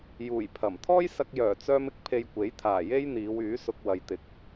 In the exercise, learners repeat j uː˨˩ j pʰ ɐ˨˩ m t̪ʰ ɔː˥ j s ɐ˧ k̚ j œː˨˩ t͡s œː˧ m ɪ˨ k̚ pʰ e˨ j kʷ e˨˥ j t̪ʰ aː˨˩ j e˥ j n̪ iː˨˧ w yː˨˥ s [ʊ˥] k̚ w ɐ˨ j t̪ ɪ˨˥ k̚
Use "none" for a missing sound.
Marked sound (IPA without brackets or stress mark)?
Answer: ʊ˧